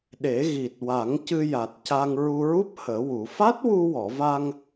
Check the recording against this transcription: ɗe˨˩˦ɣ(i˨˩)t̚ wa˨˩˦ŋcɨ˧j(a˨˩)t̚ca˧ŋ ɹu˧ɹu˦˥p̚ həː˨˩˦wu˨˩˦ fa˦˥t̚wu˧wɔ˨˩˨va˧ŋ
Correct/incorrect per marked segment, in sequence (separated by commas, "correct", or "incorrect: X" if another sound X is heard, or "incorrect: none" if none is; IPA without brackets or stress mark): correct, correct